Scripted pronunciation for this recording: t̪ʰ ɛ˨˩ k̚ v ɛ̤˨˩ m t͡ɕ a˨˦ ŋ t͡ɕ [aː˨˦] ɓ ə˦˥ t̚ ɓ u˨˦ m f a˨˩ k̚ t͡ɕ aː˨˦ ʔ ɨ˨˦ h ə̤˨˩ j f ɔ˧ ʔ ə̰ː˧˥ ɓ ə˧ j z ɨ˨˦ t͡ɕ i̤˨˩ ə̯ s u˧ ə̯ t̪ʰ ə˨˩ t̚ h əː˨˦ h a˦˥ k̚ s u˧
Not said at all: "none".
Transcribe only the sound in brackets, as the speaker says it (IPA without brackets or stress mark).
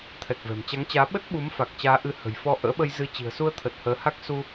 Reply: aː˨˦